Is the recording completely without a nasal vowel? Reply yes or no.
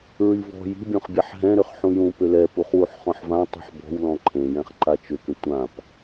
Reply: no